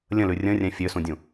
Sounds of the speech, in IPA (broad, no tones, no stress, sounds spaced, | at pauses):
lʲ ə̃ l ʉ rʲ ə̃ rʲ ɛ̃ fʲ ø s ũ dʲ ũ